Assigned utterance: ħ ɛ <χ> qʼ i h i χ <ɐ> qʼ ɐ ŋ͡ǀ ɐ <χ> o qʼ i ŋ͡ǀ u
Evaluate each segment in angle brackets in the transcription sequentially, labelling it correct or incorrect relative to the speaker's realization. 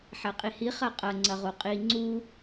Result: incorrect, correct, incorrect

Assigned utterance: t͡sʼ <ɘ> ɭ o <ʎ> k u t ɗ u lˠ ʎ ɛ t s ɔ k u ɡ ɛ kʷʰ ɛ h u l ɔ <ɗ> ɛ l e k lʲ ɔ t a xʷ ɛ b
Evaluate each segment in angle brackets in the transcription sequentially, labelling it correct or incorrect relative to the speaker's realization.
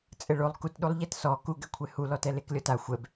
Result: correct, incorrect, incorrect

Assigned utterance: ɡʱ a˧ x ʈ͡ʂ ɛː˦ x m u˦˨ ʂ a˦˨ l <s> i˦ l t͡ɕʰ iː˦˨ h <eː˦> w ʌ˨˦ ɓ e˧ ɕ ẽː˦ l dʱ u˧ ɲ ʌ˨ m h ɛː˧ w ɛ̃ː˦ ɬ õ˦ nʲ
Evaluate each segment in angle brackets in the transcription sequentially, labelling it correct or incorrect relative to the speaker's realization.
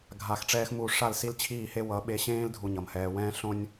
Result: correct, incorrect

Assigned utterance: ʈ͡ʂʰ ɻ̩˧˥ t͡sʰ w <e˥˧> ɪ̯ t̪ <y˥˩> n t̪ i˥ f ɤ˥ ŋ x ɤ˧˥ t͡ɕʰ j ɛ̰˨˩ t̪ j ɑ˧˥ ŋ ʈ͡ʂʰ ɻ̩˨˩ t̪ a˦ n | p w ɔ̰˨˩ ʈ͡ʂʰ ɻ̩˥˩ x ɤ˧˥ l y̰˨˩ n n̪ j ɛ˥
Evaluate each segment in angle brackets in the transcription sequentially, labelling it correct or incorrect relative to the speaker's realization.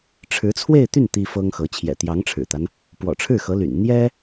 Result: correct, correct

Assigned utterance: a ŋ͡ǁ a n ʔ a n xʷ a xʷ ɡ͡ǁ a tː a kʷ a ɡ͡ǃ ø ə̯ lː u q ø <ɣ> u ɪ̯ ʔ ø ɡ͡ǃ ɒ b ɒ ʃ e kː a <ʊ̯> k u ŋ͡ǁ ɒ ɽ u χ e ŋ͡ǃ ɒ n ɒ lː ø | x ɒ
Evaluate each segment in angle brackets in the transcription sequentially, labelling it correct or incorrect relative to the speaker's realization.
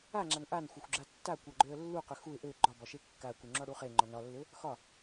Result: incorrect, correct

